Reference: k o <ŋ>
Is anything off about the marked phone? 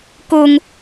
no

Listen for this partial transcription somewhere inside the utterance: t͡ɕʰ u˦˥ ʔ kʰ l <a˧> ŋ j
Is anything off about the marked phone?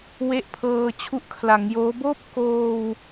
yes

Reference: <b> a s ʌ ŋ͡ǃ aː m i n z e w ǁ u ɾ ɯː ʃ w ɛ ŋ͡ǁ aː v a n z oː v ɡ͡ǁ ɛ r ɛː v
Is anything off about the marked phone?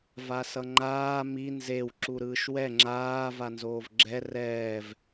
yes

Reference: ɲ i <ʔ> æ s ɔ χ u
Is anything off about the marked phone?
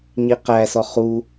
yes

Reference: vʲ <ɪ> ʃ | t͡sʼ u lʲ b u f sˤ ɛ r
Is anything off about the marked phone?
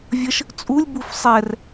yes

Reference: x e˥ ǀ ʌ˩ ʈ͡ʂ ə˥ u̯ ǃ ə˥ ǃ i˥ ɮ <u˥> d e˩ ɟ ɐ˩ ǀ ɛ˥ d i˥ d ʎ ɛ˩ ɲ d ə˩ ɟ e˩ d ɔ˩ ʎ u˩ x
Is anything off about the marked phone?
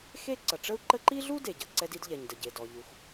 no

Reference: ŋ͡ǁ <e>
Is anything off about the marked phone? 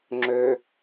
yes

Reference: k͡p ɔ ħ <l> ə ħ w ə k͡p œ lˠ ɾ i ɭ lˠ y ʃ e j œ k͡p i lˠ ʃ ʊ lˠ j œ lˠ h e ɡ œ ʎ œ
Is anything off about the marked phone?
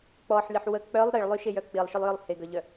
yes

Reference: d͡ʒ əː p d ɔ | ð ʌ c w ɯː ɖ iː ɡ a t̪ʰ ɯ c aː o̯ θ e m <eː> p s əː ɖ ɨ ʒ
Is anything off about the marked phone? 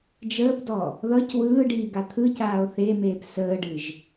no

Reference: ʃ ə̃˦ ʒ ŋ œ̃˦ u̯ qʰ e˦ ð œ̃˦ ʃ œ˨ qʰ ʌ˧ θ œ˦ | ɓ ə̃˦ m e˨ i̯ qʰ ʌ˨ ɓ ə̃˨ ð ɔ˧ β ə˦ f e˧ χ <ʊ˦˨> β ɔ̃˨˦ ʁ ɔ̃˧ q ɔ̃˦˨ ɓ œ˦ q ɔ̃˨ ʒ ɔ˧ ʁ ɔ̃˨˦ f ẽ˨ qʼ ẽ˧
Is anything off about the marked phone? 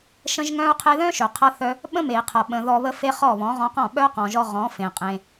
yes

